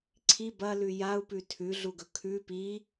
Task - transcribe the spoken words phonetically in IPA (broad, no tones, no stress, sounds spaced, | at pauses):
ǀʰ i b ɐ l ʉ j a u̯ p ʉ tʰ ʉ ɮ u ɡ ɵ kʰ ʉ p i